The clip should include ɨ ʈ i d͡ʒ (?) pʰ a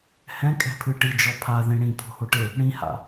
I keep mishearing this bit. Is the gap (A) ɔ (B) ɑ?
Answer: A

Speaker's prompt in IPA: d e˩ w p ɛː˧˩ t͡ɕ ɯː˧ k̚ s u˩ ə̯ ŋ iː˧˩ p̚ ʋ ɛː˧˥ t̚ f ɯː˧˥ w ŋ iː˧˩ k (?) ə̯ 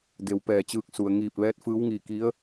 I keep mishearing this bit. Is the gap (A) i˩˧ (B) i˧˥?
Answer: B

